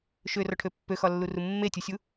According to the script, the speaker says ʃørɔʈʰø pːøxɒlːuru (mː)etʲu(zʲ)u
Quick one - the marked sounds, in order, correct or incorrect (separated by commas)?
correct, incorrect